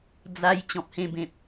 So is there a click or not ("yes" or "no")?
no